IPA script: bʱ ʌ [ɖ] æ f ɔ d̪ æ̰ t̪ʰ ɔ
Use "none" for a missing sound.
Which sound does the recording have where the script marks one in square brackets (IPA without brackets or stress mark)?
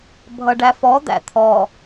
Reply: ɖ